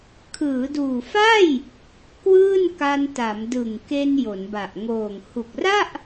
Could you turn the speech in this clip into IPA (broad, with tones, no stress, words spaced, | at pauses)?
kʰɯː˩˦duː˨˩fa˥˩j | kwɯː˥˩nka˧nta˩˦m dɯ˨˩ŋke˧n jo˩˦nba˨˩ʔ ŋoː˨˩ŋ hu˨˩k̚ra˥˩ʔ